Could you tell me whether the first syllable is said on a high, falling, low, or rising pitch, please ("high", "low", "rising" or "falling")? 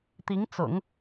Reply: rising